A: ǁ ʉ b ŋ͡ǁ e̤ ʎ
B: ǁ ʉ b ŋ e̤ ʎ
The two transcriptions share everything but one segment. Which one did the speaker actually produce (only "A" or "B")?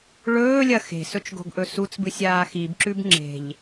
A